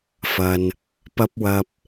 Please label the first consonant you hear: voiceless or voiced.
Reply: voiceless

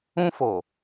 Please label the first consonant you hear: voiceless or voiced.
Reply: voiceless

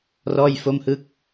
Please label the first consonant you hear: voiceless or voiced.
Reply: voiced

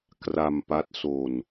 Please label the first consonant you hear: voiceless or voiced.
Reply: voiceless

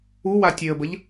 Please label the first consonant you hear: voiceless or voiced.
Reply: voiced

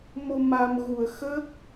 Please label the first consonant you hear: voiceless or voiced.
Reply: voiced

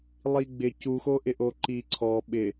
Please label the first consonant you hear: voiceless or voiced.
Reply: voiced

